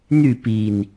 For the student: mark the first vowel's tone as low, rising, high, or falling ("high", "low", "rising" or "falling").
falling